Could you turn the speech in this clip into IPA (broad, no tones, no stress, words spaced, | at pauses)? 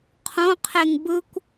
qʰõqʰeŋ bɯkʷ